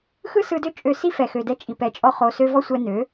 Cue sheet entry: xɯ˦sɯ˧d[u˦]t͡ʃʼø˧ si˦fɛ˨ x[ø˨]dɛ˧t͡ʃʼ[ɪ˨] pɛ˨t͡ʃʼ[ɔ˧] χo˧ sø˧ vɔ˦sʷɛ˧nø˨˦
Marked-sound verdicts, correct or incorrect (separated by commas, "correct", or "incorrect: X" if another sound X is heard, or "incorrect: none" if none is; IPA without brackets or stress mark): incorrect: ø˦, correct, incorrect: i˨, correct